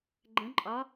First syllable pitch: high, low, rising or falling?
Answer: rising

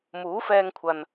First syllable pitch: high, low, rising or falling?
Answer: rising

